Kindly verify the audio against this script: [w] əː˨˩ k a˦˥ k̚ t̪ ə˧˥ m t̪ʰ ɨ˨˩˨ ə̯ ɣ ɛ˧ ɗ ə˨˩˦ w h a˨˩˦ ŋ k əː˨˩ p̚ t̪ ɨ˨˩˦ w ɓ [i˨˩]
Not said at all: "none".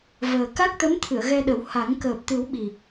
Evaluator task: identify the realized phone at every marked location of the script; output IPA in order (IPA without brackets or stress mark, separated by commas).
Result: v, i˨˩